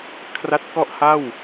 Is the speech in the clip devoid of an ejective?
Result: yes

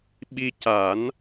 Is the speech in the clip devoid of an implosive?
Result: no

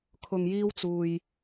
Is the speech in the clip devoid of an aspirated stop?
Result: no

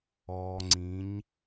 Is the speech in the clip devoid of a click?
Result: no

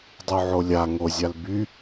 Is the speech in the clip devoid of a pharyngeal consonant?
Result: no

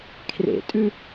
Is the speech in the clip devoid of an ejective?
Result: no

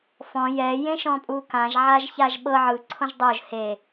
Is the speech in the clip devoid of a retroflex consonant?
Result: yes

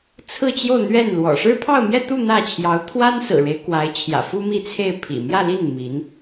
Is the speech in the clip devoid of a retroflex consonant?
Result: no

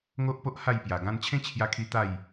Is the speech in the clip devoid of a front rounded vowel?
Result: yes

